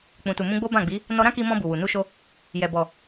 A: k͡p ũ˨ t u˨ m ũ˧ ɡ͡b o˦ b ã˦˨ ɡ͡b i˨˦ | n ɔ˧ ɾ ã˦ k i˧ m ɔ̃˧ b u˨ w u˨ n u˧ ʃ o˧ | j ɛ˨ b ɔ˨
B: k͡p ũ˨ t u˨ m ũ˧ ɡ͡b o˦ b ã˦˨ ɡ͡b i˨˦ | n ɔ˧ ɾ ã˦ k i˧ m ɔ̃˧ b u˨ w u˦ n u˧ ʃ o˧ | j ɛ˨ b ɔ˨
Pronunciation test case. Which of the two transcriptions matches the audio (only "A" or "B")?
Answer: A